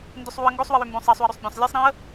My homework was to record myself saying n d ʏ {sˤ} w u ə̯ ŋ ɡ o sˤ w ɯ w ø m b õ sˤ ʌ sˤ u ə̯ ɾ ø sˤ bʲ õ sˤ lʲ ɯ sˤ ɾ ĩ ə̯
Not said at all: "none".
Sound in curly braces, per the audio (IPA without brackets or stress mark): sˤ